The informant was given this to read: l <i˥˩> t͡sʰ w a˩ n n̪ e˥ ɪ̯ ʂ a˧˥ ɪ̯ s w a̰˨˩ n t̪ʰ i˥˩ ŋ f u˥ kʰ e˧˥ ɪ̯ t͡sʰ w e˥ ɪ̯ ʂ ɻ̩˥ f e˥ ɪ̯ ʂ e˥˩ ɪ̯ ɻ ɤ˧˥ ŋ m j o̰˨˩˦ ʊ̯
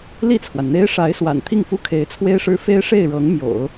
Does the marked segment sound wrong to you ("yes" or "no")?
no